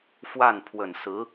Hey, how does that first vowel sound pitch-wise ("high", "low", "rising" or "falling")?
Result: falling